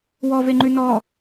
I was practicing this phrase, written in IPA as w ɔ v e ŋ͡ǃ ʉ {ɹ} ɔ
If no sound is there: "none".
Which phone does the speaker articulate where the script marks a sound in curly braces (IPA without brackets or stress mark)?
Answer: n